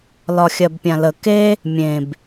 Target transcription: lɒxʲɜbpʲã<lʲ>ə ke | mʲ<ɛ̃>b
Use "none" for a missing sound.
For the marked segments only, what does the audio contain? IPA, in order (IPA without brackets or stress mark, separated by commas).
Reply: l, ẽ